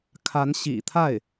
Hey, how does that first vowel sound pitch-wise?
rising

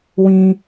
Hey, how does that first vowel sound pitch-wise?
low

